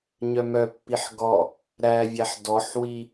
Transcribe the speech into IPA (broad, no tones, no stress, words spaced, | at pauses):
ɲœmœpːiħ ɡɔ | ɾævʲæħ dɔħwi